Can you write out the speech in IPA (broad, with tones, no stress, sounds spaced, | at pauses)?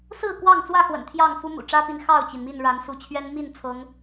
s ɹ̩˥˨ k w ɑ˥˨ ŋ t͡s w ä˥˨ x w ə̰˨˩ n t̪ʰ j ɑ˥˨ ŋ f u˦ m ṵ˨˩ ʈ͡ʂ ä˦ p i˨˦ n x ɑ˥˨ ʊ̯ t͡ɕ i˩ n m i˥˨ n ɻ a˨˦ n s u˨˦ t͡ɕʰ ɥ ɛ˦ n m i˥˨ n t͡sʰ ɤ˨˦ ŋ